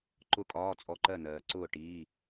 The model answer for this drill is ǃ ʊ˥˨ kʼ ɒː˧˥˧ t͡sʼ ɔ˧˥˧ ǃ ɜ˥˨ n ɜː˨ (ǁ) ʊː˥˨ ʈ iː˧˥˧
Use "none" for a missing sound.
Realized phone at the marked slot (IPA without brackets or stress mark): ǀ